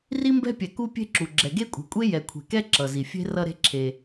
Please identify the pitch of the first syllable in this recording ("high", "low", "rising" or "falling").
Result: high